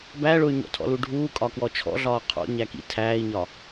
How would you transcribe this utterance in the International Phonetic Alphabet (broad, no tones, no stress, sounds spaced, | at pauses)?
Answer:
b æ ɭ ʊ y̯ ɲ ɔ̰ tʰ ɔ̰ l u ɖʱ uː kʼ ɒ k w ɔ t͡ʃʰ ɔ̰ ɮ ɒː qʰ ɔ̰ ɲ æ k ḭ tʰ æː i̯ ɲ ɒ